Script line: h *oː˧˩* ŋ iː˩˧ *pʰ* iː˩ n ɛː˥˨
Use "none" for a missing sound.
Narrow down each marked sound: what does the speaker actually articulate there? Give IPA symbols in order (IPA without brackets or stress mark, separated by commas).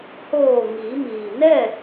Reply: oː˧˩, m